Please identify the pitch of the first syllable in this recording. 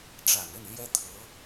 low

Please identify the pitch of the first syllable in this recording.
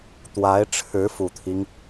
rising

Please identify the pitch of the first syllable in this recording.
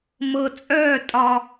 low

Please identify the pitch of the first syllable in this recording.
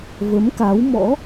rising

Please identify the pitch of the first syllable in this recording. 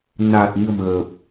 low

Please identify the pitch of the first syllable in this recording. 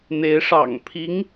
rising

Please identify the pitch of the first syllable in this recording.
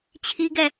high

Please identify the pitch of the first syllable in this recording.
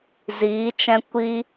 rising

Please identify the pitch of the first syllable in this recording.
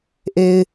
low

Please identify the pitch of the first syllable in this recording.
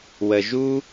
low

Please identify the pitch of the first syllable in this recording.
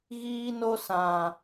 high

